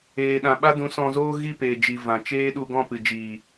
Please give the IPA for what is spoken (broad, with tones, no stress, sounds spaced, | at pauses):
eː˨ ɗ ã˨ ɓ a˦ d ũ˨˦ s ɔ̃˧ z oː˦ ɣ i˦˨ p eː˨ d͡ʒ i˨ v ã˨ t͡ʃ eː˦ ɗ u˧ ɡ ɔ̃˦˨ p ɨ˨ d͡ʒ iː˨